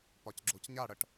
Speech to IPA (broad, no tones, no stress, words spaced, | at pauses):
pɒcɡ͡ǁocɲa ɽəʈ